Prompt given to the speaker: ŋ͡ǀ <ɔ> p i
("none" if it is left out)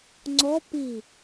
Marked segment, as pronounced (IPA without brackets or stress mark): ɔ